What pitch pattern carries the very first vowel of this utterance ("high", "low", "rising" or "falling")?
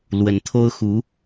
rising